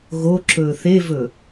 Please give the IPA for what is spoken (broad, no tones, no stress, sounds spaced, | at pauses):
ɣ o ǁ ɵː θ e v ɵ